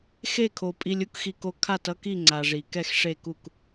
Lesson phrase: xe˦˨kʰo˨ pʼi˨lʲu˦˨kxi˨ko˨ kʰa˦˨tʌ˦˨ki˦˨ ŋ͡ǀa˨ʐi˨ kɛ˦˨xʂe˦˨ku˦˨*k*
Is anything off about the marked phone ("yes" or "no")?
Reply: no